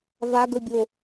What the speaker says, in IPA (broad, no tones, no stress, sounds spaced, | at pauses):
v a ɡ ɵ bʲ o